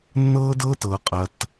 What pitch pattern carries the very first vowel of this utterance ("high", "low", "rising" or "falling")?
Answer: high